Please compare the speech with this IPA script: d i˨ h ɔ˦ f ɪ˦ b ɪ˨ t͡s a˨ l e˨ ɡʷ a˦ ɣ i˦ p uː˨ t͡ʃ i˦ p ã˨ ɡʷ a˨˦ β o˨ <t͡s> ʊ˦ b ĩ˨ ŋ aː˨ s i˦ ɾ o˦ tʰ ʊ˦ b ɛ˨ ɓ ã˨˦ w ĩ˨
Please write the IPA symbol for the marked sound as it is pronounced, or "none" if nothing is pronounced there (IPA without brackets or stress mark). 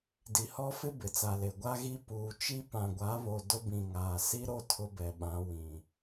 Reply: d